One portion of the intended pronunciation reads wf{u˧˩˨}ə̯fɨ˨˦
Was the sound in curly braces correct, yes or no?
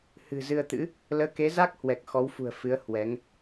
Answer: no